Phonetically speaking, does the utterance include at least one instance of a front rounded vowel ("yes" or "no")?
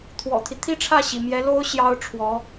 no